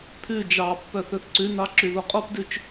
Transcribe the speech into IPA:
pʰ ʉ d͡ʒ ɑ pː œ θ ɵ θ ǀ ʉ n ɑ ǁ y ð o qʼ o p d ʉ t͡ʃ

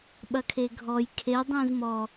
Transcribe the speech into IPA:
ɓ ɐ kʰ e ɡʱ ɔ j kʰ e dˤ ĩ z m ɔ

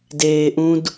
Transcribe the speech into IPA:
d eː ʔ ũ d

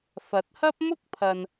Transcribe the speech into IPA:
f ɐ˨˥ t̚ h ɐ˥ p̚ m ʊ˥ k̚ pʰ ɐ˨ n

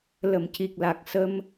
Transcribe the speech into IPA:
l ə˨˩˨ m c i˨˩ k̚ l a˨˩ k̚ s ə˧ m

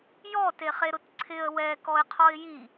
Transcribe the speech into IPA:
j ɔ t e χ e ɾ ʊ t ǀʰ ɪ ə̯ w ɛ k ɔ ɪ̯ qʰ ɔ ɪ̯ j i

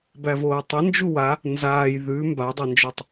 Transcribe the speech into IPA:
b æ v oː tˤ ɘ n d͡ʒ u w a | n z aː j ð ʉ m b a dˤ a n d͡ʒ ø tˤ

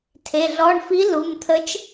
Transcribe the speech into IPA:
tʰ e˩˧˩ ɮ ɔ˩˧˩ ɳ f i˨˥ l u˩˧˩ m t̪ʰ ə˨˥ t͡ʃ

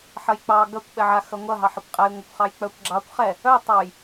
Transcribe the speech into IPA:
ħ ɐ j k͡p ɑ ɡ ɐ kʷ ɓ ɛ ʕ a x ɐ ŋʷ ɐ ɦ ɑ ħ ɐ kʷ qʼ ɛ j ŋʷ ɐ kʷ χ ɑ j k͡p œ kʷ ɡ͡ǁ ɑ kʷ χ ɛ | œ tˤ ɑ j

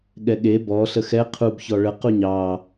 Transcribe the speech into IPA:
ɠ ɛ ɠ e b ɔ ɬ ə x ɛ qʰ u b ç ɔ ɭ ə q u ɲ ɑ

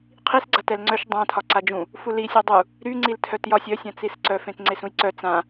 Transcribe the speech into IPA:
qʰ i s ɡ͡ǀ a t ɛ l ŋ͡ǀ œ ʃ dˤ ã tʰ ɒ ǀ a d͡ʒ ũ | f u l i sʲ œ dˤ u | ɾ y ŋ͡ǀ i l tʰ œ t j ɒ sʲ œ sʲ ã t͡s i s ǀ œ f ẽ t ŋ͡ǀ e s ũ j ǀ œ t͡s ã

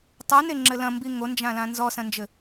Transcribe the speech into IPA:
tˤ u n e ŋ͡ǁ ɘ l ɐ̃ m b i ŋ o n d͡ʒ ã l ã n z ɔ s ɐ̃ n d͡ʒ ɘ

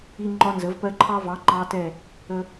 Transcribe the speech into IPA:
i˦ ŋ͡ǃ ɒ˦ n z ə˩˥ v p ɜ˦ ǃʰ ɑ˦ v ɑ˩˥ ŋ͡ǃ ɑ˦ t ɛ˦˨ | ə˦

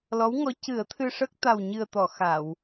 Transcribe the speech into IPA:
l ɔ˧˥ w ŋ ɔ˧˥ c ɨ˨˩˦ ə̯ t̪ʰ ɨ˧ ʂ ə˦˥ k̚ t̪ a˨˩ w ɲ ɨ˨˩ ə̯ t̪ ɔ˨˩˨ x a˨˩˨ w

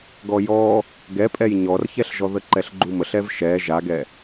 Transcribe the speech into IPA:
ɡ ɔ j ɔ | ɡ ɛ pʼ ɛ j ɲ ɔ r ç ɛ ɬ ʒ ɔ ð ə ǃ ɛ ɬ ɡ͡ǃ u m ə ɬ ɛ v ʃ ɛ ʒ a ɡ ɛ

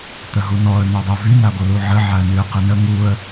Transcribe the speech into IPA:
t̪ ə ɦ u n ɔ ə̯ n̪ œ dˤ o v y n a ɡʷ ə l u ʕ ə ʕ a ə̯ n y ə̯ q ə n ə ŋ u ə̯

